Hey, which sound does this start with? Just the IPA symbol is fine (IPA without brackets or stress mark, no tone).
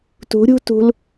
t